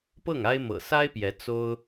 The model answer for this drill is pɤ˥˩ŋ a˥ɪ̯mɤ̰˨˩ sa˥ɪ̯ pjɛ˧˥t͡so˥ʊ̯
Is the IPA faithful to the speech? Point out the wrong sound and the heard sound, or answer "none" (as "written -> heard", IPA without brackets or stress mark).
none